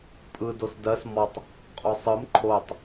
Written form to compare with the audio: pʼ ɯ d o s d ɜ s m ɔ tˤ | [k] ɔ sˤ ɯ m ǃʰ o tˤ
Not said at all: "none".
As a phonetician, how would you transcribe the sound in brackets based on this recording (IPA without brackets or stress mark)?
qʼ